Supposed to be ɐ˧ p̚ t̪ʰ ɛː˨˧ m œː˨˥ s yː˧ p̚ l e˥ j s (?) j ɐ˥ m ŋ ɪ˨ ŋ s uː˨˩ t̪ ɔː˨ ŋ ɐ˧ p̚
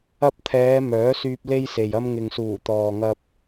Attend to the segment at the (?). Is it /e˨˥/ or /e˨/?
e˨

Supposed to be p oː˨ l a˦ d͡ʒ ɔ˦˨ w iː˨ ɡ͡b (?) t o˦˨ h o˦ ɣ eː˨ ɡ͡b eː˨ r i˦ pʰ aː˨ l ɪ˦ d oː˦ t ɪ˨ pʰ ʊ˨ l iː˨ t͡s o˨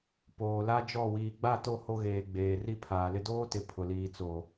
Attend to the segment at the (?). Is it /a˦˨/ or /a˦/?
a˦˨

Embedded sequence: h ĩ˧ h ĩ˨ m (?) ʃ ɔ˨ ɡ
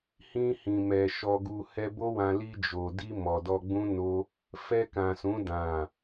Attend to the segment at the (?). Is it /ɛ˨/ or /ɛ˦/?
ɛ˨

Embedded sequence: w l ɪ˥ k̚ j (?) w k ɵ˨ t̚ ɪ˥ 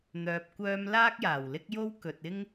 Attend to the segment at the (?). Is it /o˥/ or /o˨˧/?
o˥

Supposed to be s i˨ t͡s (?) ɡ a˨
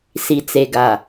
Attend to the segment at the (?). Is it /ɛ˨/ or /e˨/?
e˨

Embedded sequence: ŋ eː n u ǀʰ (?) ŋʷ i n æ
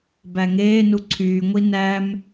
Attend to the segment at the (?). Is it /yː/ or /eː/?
yː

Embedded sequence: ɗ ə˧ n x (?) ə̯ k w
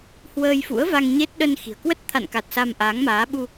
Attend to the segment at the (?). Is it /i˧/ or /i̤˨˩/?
i̤˨˩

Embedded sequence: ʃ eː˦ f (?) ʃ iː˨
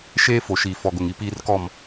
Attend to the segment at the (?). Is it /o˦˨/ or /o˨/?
o˨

